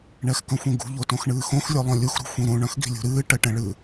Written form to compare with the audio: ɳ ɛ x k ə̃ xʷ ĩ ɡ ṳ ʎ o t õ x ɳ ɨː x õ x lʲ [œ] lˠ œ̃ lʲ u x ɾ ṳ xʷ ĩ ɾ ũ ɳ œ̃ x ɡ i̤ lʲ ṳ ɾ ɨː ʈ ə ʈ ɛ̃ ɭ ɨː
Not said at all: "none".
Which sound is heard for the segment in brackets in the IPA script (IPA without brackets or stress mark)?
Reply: œ